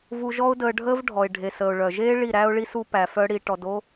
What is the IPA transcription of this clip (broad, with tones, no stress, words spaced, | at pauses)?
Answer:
vu˧ʒɔ˦ʊ̯dəː˧ɖʱəː˦v ɖʱɔ˨ɪ̯ɖʱe˨səː˨ʊ̯ ɭœ˨ʒeː˦ ɭi˦˨ɾæ˦ʊ̯ɭi˦su˦ pæ˧fœ˦ ɽi˧ ʈɔ˧do˦